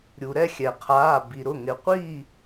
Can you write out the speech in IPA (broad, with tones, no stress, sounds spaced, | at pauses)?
ɾʲ u˩ ɾ ɛ˥˨ xʲ ɛ˩ qʰ aː˩˧˩ b i˩ ɾ ʊ˩˧˩ ŋ ɪ˩˧ qʷ i˥˨